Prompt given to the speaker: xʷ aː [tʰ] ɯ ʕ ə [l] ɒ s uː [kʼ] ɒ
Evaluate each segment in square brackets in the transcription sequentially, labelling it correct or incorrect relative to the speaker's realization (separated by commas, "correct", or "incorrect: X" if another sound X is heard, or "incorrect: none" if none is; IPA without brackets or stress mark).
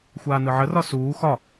incorrect: n, incorrect: r, incorrect: x